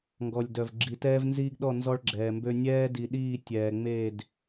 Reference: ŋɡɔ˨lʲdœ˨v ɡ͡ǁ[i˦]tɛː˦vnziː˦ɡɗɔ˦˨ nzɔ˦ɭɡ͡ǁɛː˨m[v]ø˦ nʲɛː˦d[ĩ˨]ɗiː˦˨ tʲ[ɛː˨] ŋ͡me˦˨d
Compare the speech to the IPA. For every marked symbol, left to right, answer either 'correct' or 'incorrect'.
incorrect, incorrect, incorrect, correct

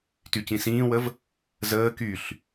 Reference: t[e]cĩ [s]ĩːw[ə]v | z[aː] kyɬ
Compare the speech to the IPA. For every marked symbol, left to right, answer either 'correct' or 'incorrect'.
incorrect, correct, correct, incorrect

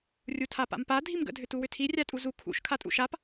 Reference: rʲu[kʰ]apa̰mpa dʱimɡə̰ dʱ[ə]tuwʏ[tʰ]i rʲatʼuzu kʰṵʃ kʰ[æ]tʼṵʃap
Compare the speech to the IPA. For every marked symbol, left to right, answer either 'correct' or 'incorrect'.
incorrect, incorrect, correct, incorrect

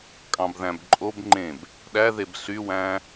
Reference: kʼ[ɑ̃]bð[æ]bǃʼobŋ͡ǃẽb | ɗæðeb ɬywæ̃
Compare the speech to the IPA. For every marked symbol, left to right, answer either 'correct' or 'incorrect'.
correct, incorrect

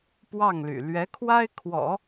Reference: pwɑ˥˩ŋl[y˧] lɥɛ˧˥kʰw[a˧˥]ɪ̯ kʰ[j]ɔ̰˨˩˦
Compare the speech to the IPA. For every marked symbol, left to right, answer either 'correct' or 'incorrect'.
incorrect, incorrect, incorrect

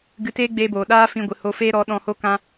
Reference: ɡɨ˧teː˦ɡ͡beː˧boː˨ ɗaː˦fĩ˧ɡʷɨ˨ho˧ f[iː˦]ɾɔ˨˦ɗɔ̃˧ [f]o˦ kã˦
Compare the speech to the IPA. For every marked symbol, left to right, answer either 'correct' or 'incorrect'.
incorrect, incorrect

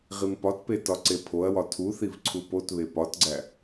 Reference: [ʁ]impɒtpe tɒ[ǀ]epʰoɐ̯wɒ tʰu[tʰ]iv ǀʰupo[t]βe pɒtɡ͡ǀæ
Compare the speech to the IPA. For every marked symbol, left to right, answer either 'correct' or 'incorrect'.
correct, correct, incorrect, correct

